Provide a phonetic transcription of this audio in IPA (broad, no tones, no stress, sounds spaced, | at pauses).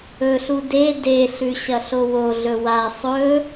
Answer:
ɵ ɬ u d e d e ɬ ʉ ɕ ɐ ɬ o w o ɮ ɵ w a sˤ ɵ